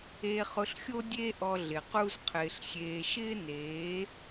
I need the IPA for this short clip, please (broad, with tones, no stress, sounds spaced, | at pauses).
e˧ χ ʊ˧ ɬ xʲ o˦ dʲ e˦ ʔ ɔ˧ ɮ ɪ˨ q u˦ z qʰ ɪː˧ ɬ xʲ eː˧ ʃ ɪː˦ n eː˨˦